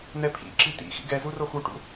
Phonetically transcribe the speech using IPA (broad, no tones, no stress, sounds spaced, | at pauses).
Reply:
n̪ ɛ pʰ ḭ ǁ i t̪ ḭ x ḭ ɡ ɛ z u r o x u ʈ ṵ